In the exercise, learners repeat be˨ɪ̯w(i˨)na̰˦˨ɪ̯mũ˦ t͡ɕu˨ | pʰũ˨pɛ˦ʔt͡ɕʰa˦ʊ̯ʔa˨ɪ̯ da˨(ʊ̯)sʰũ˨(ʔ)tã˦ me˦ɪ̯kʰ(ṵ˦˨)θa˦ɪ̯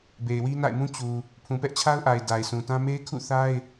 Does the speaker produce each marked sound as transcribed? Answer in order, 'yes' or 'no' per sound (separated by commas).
no, no, no, yes